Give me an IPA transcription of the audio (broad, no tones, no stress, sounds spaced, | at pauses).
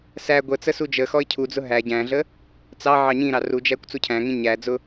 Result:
s æ ɡʷ ə t͡s ə s u d͡ʒ ə x ɔ ɪ̯ cʰ u d͡z ʊ ɦ æ ɟ æ̃ ɮ ə | t͡s ɑ ʕ ɑ ɲ ĩ ɾ ɑ r u d͡ʒ æ kʷ t͡s u cʰ æ̃ ŋ ĩ ɲ æ d͡z ʊ